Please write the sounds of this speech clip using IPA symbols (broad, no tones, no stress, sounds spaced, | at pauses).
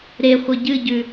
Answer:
ɾ e χʷ ɐ ɟ ɨ ɟ ʉ